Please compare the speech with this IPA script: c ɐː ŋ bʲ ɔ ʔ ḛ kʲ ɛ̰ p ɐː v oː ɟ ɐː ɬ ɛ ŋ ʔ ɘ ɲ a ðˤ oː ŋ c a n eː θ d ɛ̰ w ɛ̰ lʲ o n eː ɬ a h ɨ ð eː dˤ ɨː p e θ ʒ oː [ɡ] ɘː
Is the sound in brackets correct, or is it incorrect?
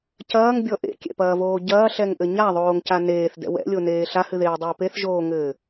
incorrect